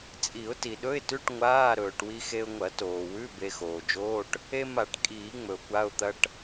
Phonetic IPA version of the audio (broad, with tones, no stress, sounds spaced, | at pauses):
t͡sʼ i˨˩˦ ʊ̯ t i˩ ɗ ɵ˧˥˧ ɪ̯ t ʉ˧˥˧ ʈ ŋʷ aː˧˥˧ ɾ ɵː˩ ʈ w i˧ x e˧ ʊ̯ ŋʷ ɐ˨˩˦ t oː˩ w ʉ˧˥˧ b e˧ x oː˩ d͡ʒ oː˧˥˧ ʈ | e˧ m a˨˩˦ ʈ kʼ iː˨˩˦ ŋ͡m ɵ˩ ʊ̯ kʷ a˧˥˧ ʊ̯ t̪ ɐ˧˥˧ ʈ